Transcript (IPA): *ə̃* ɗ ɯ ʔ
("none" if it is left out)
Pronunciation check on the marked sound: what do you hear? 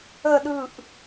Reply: ə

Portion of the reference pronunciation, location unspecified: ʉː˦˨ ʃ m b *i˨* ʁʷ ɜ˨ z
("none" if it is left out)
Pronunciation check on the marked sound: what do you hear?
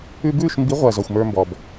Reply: i˨˦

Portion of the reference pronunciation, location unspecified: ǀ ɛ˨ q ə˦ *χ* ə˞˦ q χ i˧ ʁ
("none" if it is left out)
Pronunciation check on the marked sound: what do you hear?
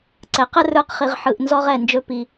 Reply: r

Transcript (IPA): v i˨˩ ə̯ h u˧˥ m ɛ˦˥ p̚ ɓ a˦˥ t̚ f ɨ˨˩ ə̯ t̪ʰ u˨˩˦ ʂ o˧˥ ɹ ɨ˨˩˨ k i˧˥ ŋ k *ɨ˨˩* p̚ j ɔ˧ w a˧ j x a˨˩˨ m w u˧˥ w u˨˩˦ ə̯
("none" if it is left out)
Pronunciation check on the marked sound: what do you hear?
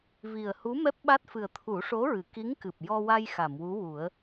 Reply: ɨ˨˩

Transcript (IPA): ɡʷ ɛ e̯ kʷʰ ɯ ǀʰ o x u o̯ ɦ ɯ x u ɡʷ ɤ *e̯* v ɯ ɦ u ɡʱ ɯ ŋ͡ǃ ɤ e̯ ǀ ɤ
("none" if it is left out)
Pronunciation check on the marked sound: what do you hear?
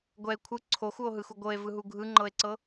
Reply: e̯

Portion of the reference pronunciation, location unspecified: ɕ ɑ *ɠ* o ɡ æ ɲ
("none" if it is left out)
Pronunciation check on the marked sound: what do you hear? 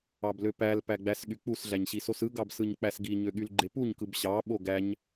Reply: ɓ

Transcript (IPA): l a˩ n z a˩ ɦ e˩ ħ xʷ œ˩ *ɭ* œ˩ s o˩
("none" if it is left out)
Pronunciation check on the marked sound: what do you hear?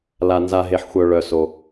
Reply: ɭ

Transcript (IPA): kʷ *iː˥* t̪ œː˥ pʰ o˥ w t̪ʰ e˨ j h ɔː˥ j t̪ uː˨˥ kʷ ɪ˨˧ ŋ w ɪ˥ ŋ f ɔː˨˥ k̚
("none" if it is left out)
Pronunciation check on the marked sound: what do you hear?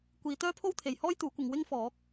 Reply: iː˨˧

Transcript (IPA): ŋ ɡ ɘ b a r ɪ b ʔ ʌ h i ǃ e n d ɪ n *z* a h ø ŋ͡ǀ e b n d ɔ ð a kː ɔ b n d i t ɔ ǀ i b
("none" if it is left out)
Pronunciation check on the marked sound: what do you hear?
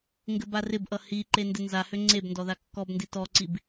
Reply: z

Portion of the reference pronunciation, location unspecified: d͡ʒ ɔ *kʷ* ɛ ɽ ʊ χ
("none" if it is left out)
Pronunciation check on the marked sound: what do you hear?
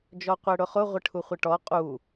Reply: qʷ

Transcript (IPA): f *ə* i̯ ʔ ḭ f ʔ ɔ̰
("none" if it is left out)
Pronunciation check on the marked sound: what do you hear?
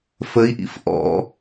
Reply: ə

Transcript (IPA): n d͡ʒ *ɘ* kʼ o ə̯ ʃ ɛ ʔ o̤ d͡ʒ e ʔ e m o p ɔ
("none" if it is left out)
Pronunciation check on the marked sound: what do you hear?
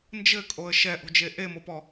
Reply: ɘ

